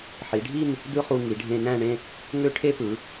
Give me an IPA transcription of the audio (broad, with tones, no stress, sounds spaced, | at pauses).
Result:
ħ i˩˧ ɖʱ i˥˧ n | d̪ ɯ˥ χ u˧ ŋ i˩˧ ɖʱ ẽ˧ n æ̃˥˧ ɳ ẽ˥˧ | ŋ ø˥ ʈʰ e˥ p ɯ˩˧